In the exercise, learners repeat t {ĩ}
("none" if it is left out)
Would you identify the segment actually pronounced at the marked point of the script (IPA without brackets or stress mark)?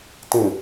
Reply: ĩ